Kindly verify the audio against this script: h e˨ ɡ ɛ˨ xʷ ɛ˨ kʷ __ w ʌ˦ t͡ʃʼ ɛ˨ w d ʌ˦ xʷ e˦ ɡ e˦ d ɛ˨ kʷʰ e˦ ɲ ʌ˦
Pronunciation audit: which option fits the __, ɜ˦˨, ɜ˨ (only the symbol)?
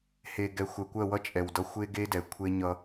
ɜ˦˨